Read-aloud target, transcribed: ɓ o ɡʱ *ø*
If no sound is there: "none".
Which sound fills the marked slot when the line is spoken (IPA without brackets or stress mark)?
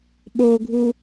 u